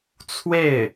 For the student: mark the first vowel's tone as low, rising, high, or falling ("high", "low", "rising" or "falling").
falling